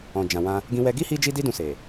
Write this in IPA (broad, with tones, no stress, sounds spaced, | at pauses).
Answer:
ɔ̃˨ d͡ʒ ã˨ w ã˧ | ɡ ĩ˧ w ɛ˧ ɡ i˦ h i˦ d͡ʒ i˦ d i˦ d ũ˧ s e˨